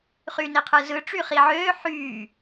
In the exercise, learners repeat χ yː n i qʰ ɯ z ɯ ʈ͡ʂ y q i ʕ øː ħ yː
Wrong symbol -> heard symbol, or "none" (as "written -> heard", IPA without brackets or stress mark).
q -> χ